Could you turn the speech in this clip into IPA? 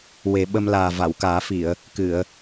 w e˨˩˦ ɓ ə˧ m l aː˨˩ v a˨˩˨ w k aː˨˩˦ f i˨˩˨ ə̯ | k ɨ˨˩˨ ə̯

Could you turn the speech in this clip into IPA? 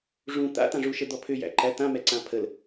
ʐ ũ t̪ a̰ t̪ ã ʐ u ʃ ə d̪ ɔ pʰ ʏ j æ̰ ǃ æ t̪ ã m ɛ ǀ ã pʰ ə l

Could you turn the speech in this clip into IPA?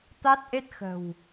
t̪ a˦˥ t̚ ʔ e˦˥ t̚ x ə̤˨˩ w

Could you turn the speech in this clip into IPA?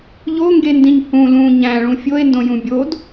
ʎ o ŋ ɡ e n d ĩ ɲ h ũ l ũ ɲ æ̃ ɭ ũ fʲ o e̯ n d õ j ũ bʲ o d

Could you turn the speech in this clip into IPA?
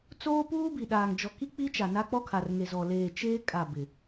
t͡s oː˦ p uː˦ b i˨ ɗ aː˨ ŋ d͡ʒ ɔ˨ k i˦ k͡p i˦ t͡ʃ a˨ n a˦ k͡p ɔ˦ kʰ a˨ r ŋ e˨ z ɔ˨ l eː˨ t͡ʃ eː˦ kʼ a˦˨ b ɪ˨

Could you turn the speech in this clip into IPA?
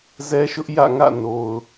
z ɛ˦ ʃ ʊ˦ ʔ j ä̰˦˨ ŋ ä̰˦˨ n o˨ ʊ̯

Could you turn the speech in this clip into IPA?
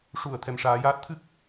ʂ u˨˩˨ ə̯ t̪ʰ ɛ˨˩ m ʂ aː˨˩˦ j aː˦˥ t̚ t̪ʰ ɨ˦˥ k̚

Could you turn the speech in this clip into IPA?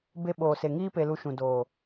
b e˧ ɓ oː˨ s e˨ ŋ iː˧ p e˨ l u˨ ʃ ũ˨ d oː˨

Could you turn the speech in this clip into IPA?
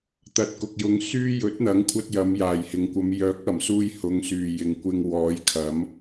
t̪ ɐ˨ t̚ k ʊ˨ k̚ j ʊ˨˧ ŋ s yː˥ j ɵ˨˥ t̚ n̪ ɐ˨˥ ŋ kʷʰ ɐ˧ t̚ j ɐ˨˧ m j aː˨˩ j h ɪ˨ ŋ kʷ ɐ˨˧ m j œː˨˥ k̚ ɐ˨˩ m s uː˧ j h ʊ˨˧ ŋ s yː˨˩ j ɪ˨ ŋ kʷ ɪ˧ ŋ w ɔː˨˥ j kʰ ɐ˨˥ m

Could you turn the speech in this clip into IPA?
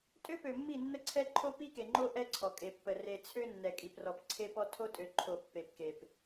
tʼ ø˦ p ø˨ mː i˦˨ nː ə˦ ǀʰ ɛ˦ ǃʰ o˦ p i˦ k e˨ ŋ͡ǃ o˦ ʔ ɛ˦ ǀʰ ɔ˨ kʼ e˨ pː ə˨ r e˨ t͡sʰ ø˦ nː ɛ˨ kʼ i˨ p r ɔ˨ p ǀʰ e˦ p ɔ˦ tʰ o˦ tʼ ø˨ ǃʰ o˨ pː e˨ p k e˨ p

